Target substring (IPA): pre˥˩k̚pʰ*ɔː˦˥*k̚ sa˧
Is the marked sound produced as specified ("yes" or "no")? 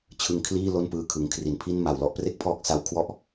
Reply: yes